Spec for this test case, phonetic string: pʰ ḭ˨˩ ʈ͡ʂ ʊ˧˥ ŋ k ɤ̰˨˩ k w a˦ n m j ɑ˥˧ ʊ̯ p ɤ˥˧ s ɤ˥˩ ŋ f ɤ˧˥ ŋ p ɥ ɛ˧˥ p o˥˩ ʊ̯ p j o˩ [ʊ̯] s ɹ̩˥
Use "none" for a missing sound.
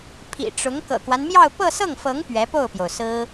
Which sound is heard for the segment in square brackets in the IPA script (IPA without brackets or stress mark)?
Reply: ʊ̯